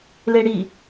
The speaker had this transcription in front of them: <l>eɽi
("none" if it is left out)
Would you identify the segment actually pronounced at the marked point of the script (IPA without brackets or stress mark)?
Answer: l